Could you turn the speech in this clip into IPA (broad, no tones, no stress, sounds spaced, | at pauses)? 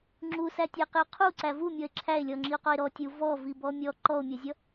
ŋ͡ǁ u s æ tʲ æ q ɪ o̯ qʰ u ǀ æ v u mʲ ɔ e̯ ǁʰ æ e̯ lʲ ɔ ŋ͡ǁ i o̯ q ɔ e̯ ɾ ɔ tʲ u v ɔ v i b ɔ mʲ ɔ ǃ ɔ o̯ mʲ ʌ zʲ ʌ